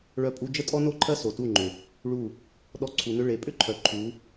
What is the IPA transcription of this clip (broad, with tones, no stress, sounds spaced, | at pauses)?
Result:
ɭ œ˧ pʼ u˧ d͡ʒ ə˦ tʼ ɔ˦ n o˦ ǃʰ ɜ˦ s o˨ t u˦˨ ŋ͡ǃ ʏ˨ | ɭ u˦˨ | ɗ ɔ˧ ǀʰ u˨ n ʏ˧ ɭ e˨˦ pʼ ʏ˦ ǃʰ œ˨ ǃʰ u˨˦